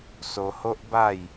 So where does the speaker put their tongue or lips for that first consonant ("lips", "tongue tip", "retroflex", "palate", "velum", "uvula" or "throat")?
tongue tip